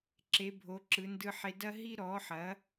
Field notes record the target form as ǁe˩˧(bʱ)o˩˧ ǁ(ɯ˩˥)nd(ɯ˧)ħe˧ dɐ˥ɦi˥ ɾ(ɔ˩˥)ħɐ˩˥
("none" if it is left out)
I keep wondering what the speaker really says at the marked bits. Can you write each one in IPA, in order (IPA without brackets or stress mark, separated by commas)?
bʱ, ɯ˩˧, ɯ˧, ɔ˩˥